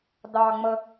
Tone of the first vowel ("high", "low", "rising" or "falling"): low